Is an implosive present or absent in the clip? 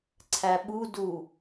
present